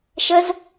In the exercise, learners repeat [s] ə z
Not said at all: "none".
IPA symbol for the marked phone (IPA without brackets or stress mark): ʃ